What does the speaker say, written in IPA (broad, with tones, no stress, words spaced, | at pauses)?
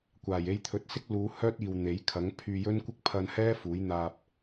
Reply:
kʷaː˨˩je˧jt̪ʰɵ˨˥t̚sɪ˥k̚ luː˨˧ hœː˥t̚iː˨w n̪e˨˥j kʰɐ˨˥ŋ pʰyː˧jɵ˥nkʷɪ˥k̚ pʰɐ˧nhɛː˥ fuː˨˥jn̪aː˧p̚